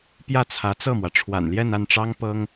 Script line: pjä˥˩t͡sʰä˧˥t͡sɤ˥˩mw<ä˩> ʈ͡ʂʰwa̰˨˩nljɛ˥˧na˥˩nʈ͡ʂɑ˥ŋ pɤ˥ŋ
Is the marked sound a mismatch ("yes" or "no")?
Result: no